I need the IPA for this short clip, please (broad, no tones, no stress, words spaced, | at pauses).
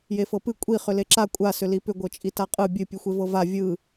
jefɤpɨ kʷʼi χʏleǁa kʷʼa sʏlipʏ ɡʷɤt͡ʃʼitaqʼɯ bʲɨ pʲɨxʷevɤva vʲɯ